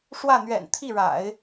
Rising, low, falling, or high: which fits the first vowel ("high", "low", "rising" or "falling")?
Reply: falling